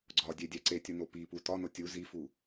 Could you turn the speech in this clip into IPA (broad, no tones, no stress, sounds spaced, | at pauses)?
ɡ͡ǀ ɒ dʲ e dʲ æ ǀ e tʲ u n o p i p u t ɒ n o tʲ u z i f u